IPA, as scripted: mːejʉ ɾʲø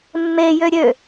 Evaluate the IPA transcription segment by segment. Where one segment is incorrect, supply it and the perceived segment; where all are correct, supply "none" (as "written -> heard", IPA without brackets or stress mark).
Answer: ʉ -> ø